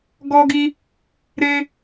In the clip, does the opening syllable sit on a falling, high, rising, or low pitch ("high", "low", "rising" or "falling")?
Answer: high